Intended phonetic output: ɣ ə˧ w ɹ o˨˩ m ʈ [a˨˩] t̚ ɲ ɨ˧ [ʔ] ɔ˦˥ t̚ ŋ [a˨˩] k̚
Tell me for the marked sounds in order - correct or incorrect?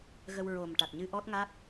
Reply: correct, correct, incorrect: a˦˥

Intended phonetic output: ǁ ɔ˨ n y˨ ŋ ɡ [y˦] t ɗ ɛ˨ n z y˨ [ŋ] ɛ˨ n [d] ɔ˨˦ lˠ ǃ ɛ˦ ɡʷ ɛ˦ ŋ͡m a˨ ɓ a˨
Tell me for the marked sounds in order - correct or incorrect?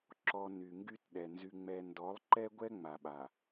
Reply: correct, incorrect: ŋ͡m, correct

